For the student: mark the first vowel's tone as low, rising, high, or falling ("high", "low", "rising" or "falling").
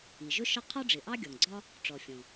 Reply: low